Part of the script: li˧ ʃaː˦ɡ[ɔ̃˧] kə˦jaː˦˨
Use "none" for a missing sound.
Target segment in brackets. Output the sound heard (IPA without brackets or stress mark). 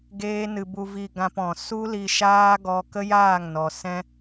ɔ˧